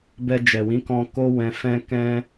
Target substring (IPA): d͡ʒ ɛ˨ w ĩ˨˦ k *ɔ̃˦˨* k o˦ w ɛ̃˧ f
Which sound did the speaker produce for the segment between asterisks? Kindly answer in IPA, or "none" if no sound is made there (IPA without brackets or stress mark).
ɔ̃˧